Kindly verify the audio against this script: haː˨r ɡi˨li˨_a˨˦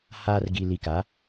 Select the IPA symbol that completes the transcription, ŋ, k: k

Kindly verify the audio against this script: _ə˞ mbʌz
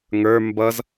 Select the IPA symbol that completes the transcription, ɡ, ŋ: ŋ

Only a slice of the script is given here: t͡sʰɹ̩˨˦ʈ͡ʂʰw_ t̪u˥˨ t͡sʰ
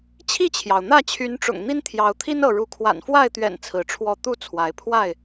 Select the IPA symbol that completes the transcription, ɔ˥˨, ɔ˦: ɔ˥˨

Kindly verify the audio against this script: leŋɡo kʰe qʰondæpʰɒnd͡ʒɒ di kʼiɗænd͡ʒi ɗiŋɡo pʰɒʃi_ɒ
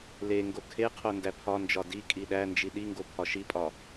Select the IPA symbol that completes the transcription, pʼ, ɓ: pʼ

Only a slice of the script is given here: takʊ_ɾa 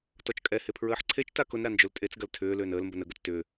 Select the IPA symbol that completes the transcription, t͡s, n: n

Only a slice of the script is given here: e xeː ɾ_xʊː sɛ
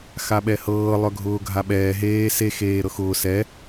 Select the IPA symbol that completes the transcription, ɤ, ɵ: ɤ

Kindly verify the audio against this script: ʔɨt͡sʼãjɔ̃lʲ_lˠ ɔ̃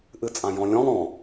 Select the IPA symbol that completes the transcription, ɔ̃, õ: ɔ̃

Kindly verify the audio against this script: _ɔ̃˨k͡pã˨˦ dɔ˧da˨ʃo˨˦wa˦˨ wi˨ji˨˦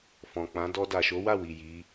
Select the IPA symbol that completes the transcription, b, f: f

